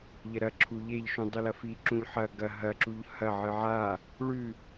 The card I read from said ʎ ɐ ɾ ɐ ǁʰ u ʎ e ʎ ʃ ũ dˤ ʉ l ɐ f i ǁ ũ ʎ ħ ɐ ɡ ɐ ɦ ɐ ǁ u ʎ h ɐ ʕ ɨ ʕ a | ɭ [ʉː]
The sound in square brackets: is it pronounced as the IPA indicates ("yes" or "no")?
no